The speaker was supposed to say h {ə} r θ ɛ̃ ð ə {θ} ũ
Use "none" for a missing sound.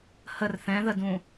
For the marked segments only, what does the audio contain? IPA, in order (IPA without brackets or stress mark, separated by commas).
ə, d